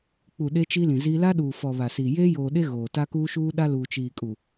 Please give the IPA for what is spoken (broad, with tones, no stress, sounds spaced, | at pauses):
k͡p u˨ ɗ e˦ t͡ʃ i˦ l ĩ˨ z i˦ l a˦ ɗ uː˨ f ɔ˨ β a˨ s iː˨ j eː˦ j oː˨ ɗ e˦ ɣ oː˨ t a˦ k uː˦ ʃ uː˦ ɗ a˦ l uː˨ t͡ʃ iː˨ kʼ u˨